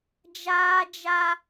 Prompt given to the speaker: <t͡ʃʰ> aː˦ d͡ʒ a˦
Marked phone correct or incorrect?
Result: incorrect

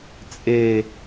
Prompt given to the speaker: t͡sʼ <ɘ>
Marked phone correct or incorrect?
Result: incorrect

